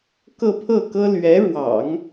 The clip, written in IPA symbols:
k ɤ˥˧ pʰ ɤ˥˩ k ɤ˥ l ɥ ɛ˧˥ ɻ w ɑ̰˨˩˦ ŋ

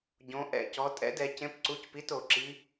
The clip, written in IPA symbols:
ɟ õ˩˧ ʔ ɛ̰˧˩˧ c ɔ˩˧ tʼ ɛ̰˨˥ d ɛ˩˧ c ẽ˨˥ p ǀ u˨˥ c p i˨˥ t o˩˧ ǁ i˨˥

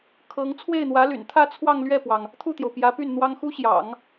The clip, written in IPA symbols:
kʰ ɤ˧˥ ŋ t͡sʰ w e˥˩ ɪ̯ n̪ w ä˧˥ l y̰˨˩ n t̪ʰ ä˥˧ t͡sʰ w ɑ˥˧ ŋ l ɥ ɛ˥˩ p w ɑ˩ ŋ | t̪ʰ u˥˩ t̪ j o˩ ʊ̯ p j ä˧˥ p y˥˩ n n̪ w ɑ˥ ŋ x u˥ ɕ j ɑ̰˨˩˦ ŋ

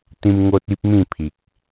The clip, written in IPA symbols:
t̪ ĩ˧ m ŋ o˦ t̚ i˦ p̚ m ĩ˥˧ pʰ i˨ k̚

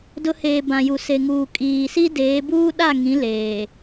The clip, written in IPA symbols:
d ʊ˦ h eː˨ b ã˨ j u˨ s e˨ ŋ uː˨ kʼ iː˨ s i˦ d eː˨˦ b uː˦ ɗ a˦˨ ŋ ĩ˨˦ l eː˨

